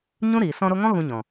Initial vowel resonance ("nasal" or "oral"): nasal